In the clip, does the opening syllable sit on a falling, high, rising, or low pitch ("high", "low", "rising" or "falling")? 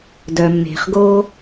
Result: low